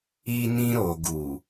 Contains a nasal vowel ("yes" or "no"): yes